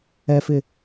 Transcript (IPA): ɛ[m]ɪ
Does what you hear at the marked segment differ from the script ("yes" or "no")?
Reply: yes